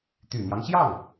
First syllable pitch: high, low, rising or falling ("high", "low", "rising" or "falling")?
low